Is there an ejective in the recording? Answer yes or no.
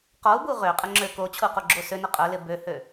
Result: yes